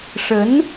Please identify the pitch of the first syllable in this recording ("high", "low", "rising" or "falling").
rising